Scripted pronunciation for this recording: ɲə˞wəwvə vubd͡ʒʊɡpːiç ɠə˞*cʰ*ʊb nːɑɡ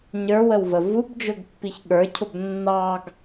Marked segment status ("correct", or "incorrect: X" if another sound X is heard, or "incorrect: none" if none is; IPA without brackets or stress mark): correct